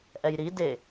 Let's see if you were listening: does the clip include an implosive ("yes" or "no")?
no